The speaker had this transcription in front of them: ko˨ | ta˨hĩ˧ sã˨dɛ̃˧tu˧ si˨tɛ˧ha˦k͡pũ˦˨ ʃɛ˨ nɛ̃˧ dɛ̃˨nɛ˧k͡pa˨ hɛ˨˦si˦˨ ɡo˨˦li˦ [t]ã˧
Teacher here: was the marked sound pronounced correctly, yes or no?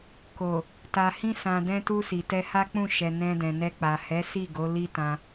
yes